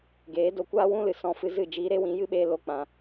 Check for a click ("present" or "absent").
absent